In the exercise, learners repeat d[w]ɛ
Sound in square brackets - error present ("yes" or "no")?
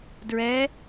yes